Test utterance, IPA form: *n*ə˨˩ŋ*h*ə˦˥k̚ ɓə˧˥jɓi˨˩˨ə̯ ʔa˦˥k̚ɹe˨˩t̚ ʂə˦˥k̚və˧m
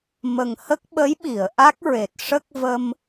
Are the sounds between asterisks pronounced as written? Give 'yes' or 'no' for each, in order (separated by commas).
no, yes